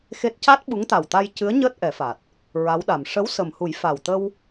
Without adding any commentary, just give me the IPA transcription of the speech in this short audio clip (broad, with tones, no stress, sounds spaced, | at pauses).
x e˦˥ t̚ c a˦˥ t̚ ɓ u˧˥ ŋ t̪ a˨˩ w t̪ a˧ j c ɨ˧˥ ə̯ ɲ əː˦˥ t̚ ʔ ɛ˨˩˦ f a˨˩ t̚ | ɹ a˧˥ w ɗ a˨˩ m ʂ ə˧˥ w s ə˨˩ m h u˨˩˦ j f a˨˩ w t̪ ə˧ w